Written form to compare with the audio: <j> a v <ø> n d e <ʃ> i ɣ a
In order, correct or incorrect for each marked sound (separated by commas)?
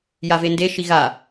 correct, incorrect, correct